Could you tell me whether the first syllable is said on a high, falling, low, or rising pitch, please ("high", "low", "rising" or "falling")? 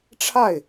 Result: falling